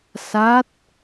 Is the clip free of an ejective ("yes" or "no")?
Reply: yes